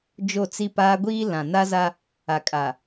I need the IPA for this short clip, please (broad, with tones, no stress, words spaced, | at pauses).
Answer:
d͡ʒo˦˨t͡si˦paː˦ ɡʷiː˦ lã˨na˦za˦ | a˨kʼa˨